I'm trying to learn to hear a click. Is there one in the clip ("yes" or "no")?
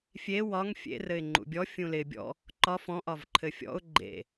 yes